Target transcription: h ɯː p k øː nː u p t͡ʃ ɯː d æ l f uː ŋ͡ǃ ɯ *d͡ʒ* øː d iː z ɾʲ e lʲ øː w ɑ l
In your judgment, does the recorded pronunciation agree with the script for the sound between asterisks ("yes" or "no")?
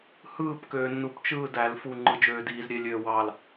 yes